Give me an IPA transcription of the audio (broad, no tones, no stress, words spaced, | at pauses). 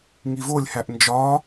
ŋivolʲhæʔ nd͡ʒɒ